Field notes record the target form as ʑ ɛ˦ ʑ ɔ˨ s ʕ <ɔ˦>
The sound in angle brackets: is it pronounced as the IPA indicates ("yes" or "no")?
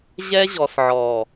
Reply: no